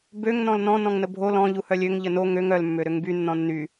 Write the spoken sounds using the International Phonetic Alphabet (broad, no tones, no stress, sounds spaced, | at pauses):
b ø ŋ n ɔ̃ l n ɔ̃ n ɔ̃ ŋ n ə bʱ o l ɔ̃ ʎ u h œ lʲ ø ŋ ʎ ə n o ŋ ø ŋ œ l mː ø ɾ ø ŋ b y nː ɔ̃ nː y